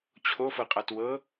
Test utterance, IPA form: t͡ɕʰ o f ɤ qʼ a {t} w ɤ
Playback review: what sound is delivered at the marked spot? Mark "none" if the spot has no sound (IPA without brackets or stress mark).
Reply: t